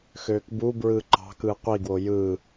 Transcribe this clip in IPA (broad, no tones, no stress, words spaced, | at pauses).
xøːkbubɹɯː ǃɑ̤kɯː qʷiɡwo jɯː